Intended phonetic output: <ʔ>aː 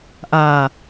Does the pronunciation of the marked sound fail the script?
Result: no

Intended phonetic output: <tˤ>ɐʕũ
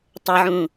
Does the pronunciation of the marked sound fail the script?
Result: no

